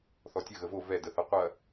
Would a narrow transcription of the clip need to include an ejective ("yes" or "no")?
no